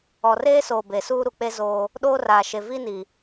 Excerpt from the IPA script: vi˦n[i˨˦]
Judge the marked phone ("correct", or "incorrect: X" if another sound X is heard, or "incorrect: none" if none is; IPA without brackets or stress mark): incorrect: i˨